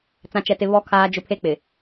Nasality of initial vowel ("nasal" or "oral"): nasal